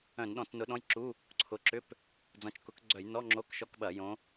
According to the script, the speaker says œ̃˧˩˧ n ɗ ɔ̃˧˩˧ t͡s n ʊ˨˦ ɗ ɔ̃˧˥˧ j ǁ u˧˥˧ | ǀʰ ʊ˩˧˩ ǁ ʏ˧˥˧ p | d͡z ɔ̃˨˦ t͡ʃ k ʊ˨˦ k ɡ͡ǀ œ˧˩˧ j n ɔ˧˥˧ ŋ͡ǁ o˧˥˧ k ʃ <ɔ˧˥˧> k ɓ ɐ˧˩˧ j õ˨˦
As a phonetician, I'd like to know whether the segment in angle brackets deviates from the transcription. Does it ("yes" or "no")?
no